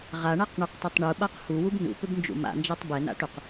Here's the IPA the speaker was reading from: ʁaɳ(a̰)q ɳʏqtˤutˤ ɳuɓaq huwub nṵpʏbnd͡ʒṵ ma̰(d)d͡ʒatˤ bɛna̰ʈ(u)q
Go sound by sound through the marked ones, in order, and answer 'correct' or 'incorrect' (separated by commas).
incorrect, incorrect, correct